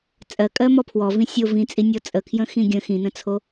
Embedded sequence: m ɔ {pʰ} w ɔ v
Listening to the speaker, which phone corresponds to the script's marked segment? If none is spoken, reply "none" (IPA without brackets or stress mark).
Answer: pʰ